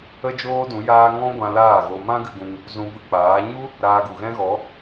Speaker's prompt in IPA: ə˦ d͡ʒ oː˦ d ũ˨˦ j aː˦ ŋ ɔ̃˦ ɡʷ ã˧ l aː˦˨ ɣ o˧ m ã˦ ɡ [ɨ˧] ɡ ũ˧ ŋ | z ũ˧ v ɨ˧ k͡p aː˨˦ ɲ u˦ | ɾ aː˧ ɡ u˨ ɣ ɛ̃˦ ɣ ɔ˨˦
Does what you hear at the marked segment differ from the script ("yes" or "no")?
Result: no